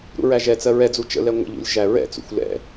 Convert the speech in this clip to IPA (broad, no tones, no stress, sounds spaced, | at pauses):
ɾ ṵ ɹ æ ʒ ɛ t͡s ɜ ɹ ɛ d͡z u t͡ʃ ə̰ l ɛ ŋʷ ə̰ ʎ ṵ lʲ ʒ æ ɹ ɛ̰ t͡s ṵ xʷ l ɛ̰